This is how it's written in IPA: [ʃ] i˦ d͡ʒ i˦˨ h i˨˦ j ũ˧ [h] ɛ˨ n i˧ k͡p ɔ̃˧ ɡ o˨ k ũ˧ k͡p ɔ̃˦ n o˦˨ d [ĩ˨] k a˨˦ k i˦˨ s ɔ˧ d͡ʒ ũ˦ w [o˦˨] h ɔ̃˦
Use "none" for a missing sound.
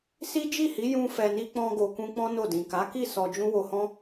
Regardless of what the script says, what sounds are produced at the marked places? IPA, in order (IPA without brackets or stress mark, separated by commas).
s, f, ĩ˨, o˧